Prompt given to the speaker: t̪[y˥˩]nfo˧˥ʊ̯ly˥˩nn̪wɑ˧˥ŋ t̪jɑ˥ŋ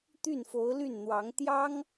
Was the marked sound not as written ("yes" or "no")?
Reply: no